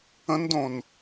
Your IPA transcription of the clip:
ə̃ n d õ n

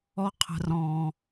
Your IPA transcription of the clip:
ɔ˧ qʰ ə̤˨ r ɔ̃˨

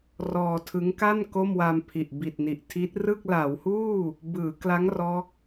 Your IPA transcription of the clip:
r ɔː˧ tʰ ɯ˦˥ ŋ k a˥˩ n k o˥˩ m w a˧ m pʰ i˨˩ ʔ b i˨˩ t̚ n i˨˩ ʔ tʰ i˦˥ t̚ r ɯ˥˩ k̚ l a˩˦ w h uː˥˩ | b ɯː˩˦ k l a˦˥ ŋ r ɔː˦˥ k̚

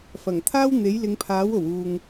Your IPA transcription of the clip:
f ɐ˨˩ ŋ t̪ʰ aː˥ w n̪ e˨˥ j l ɪ˨˧ ŋ pʰ aː˨˥ w o˨˩ w uː˨ ŋ

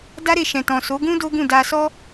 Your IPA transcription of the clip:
d a˦ ɾ e˧ ʃ ɛ̃˨ t ɔ̃˨ s o˨˦ ɡ ũ˦ d o˦ ɡ ũ˦˨ d a˧ s ɔ˦

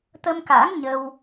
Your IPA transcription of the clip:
t̪ ə˧ m k a̰ː˧˥ ŋ ɲ ə˧ w

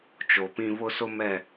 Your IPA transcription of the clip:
t͡ʃ o˨ p ĩ˦ β ʊ˦ s ʊ˦ m ɛ˦˨

